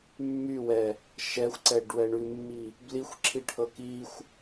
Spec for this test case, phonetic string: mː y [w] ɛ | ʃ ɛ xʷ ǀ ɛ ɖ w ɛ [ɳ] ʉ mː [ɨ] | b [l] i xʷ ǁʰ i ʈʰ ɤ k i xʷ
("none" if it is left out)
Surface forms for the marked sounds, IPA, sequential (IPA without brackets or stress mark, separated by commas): w, ɳ, i, l